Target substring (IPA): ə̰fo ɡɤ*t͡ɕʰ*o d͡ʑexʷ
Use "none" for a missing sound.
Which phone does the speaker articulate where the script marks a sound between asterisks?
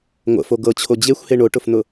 t͡ɕʰ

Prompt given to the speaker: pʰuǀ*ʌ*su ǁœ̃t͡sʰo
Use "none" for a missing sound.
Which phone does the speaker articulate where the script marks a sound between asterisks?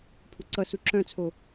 ʌ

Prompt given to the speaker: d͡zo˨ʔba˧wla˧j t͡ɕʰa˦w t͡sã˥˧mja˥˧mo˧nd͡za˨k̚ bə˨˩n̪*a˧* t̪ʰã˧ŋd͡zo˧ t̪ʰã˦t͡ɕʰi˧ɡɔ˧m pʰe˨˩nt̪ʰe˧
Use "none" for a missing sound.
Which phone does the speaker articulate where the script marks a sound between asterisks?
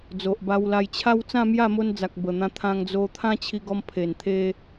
ã˧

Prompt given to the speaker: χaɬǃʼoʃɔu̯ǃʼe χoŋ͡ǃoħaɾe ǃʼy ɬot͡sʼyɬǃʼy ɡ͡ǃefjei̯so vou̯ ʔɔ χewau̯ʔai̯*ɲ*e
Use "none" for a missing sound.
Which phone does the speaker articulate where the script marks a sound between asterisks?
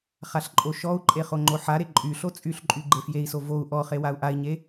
ɲ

